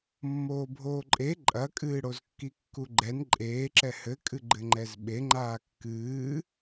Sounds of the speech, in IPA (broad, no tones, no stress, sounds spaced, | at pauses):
mː oː bʱ oː ǃʼ e ǃʼ ɐ kʼ ɨː ɽ o z kː i kː u ɡ͡ǃ ɛ n ǃʼ eː ǁ ɛ h ɘ kʼ ɨ ɡ͡ǃ ɘ ŋ͡ǃ ɛ z ɓ e ŋ͡ǃ aː kː ɨː